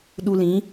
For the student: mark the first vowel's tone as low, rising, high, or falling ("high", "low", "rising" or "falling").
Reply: low